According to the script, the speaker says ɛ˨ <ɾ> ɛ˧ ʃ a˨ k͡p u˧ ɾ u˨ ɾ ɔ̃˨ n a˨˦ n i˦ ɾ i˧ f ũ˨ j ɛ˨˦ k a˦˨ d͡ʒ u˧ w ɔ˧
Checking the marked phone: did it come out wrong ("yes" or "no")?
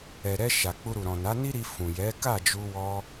no